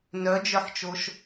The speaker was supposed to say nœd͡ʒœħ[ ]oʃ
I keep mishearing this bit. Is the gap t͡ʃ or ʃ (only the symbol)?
t͡ʃ